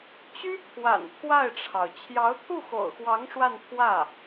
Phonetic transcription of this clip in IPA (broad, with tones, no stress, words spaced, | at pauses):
t͡ɕy˥pʰwa̰˨˩n pʰwa˥˩ɪ̯ʈ͡ʂʰɑ˩ʊ̯ t͡ɕʰjɑ˧˥ʊ̯t̪ʰu˥˩xo̰˨˩ʊ̯xwɑ˧˥ŋ ʂwa˥˧npʰwä˥˩